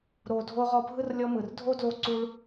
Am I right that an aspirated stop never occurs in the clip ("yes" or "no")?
yes